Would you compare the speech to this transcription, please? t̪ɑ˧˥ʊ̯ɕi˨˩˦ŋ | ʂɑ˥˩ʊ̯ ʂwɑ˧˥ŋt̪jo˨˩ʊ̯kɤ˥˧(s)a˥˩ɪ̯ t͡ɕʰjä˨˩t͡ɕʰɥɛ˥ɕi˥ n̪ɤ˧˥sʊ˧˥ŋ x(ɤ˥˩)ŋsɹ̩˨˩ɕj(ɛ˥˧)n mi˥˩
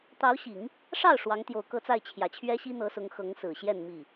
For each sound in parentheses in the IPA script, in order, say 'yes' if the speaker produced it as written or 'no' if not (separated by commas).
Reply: no, no, yes